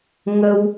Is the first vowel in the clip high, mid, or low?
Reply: mid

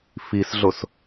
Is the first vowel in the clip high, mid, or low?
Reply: high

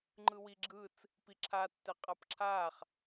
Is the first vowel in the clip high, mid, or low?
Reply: high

